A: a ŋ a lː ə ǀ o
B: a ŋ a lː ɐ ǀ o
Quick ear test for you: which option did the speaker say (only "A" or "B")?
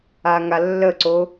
A